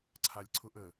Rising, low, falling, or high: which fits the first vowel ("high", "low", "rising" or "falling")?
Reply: low